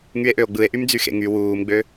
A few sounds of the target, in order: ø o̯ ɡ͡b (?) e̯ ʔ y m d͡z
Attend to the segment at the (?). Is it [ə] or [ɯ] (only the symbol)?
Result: ɯ